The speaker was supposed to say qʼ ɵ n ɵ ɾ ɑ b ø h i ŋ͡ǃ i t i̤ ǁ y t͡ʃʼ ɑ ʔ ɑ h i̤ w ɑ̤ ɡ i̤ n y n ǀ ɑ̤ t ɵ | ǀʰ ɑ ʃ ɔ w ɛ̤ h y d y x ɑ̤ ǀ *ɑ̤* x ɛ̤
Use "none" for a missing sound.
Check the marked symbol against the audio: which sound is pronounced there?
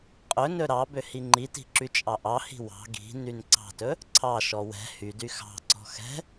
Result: ɔ̤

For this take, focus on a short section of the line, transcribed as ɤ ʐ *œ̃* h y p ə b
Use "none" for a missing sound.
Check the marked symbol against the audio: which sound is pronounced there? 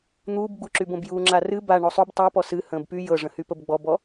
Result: ə̃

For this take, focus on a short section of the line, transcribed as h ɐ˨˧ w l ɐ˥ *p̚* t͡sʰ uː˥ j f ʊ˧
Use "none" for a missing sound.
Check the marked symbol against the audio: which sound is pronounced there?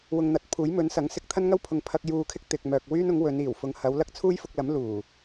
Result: k̚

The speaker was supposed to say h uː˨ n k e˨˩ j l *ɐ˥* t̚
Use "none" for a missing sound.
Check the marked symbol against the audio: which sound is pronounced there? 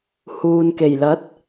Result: ɐ˨˥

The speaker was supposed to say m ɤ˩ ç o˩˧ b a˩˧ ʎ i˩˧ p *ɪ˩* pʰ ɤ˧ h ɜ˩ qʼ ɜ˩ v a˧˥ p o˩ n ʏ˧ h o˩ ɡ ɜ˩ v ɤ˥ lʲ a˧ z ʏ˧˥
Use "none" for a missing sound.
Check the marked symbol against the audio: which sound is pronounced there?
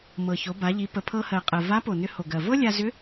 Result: ə˩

